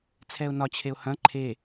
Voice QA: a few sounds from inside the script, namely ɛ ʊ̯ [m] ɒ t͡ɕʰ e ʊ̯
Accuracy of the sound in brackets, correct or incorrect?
incorrect